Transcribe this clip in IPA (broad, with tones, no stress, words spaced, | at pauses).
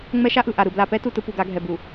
ŋ͡mɛ˦ʃa˦ʔɯ˨ ʔa˨ɾɯ˨ bla˨pɛ˦ tu˦tɯ˦ pu˨ɡa˨˦ɡʱɛ˨ bu˨